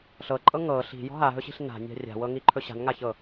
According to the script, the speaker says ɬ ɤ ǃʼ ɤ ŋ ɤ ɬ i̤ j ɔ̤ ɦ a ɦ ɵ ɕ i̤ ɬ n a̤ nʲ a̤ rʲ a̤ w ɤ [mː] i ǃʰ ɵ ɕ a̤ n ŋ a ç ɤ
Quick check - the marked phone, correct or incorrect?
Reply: incorrect